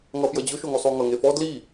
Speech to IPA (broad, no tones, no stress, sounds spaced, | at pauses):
ŋ ʌ f j ʌ d͡ʑ ʊ ʃ o ŋ o sˤ o ŋ ʌ ŋ e f ɔ d l i